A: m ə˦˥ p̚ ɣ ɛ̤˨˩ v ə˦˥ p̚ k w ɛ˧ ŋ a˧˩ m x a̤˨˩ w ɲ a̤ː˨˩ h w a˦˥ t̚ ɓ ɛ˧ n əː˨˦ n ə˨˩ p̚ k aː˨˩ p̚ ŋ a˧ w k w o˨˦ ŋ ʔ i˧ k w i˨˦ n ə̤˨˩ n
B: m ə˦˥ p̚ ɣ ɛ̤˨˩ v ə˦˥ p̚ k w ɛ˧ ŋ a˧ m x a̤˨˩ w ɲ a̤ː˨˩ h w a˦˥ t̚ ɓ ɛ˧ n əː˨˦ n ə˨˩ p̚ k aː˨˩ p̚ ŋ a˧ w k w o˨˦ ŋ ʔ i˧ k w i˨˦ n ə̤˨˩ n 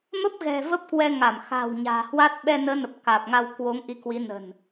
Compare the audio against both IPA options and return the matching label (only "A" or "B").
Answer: A